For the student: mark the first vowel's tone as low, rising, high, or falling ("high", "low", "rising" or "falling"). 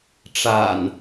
low